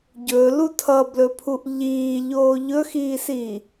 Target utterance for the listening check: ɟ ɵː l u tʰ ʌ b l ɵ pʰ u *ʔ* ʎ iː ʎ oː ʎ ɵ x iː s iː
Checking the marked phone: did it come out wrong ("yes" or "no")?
no